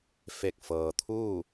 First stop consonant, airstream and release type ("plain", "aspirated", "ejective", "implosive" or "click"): plain